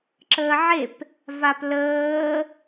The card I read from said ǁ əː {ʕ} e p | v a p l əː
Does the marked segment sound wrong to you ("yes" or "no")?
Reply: no